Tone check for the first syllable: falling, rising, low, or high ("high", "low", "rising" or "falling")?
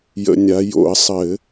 low